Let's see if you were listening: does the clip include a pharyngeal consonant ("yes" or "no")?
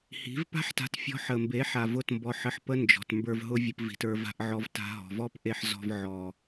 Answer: yes